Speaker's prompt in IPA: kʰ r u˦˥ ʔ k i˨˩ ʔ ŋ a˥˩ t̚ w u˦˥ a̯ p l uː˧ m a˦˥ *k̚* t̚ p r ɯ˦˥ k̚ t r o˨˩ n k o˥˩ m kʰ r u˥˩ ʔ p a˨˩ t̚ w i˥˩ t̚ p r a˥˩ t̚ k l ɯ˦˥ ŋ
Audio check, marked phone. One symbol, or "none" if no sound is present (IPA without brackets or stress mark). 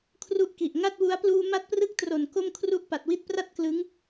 none